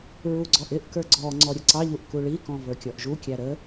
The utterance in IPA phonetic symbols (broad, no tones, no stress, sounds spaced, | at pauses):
ɹ u ɡ͡ǀ ɔ ʔ ɪ ʔ k ə˞ ɡ͡ǀ ɔ ŋ͡ǀ ɔ ɾʲ ʊ ǀ ɑ ʎ u ʔ k u ɭ i k ɔ̃ v ə˞ kʲ ɔ ʔ ʒ u kʲ æ ɾ ə